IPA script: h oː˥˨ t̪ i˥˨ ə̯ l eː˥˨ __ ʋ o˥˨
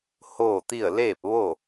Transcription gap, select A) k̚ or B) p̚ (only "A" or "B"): B